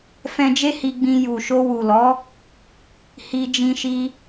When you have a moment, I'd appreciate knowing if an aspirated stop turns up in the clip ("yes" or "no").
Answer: no